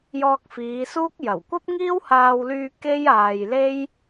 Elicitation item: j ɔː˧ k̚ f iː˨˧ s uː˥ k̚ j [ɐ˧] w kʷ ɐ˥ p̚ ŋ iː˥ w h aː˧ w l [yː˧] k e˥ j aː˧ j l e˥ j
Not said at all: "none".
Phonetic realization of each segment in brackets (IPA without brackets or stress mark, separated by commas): ɐ˨˩, yː˧